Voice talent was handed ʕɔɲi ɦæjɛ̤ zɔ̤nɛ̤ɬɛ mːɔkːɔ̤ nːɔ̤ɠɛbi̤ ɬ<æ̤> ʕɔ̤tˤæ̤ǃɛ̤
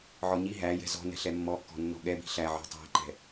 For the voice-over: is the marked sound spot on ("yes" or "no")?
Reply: no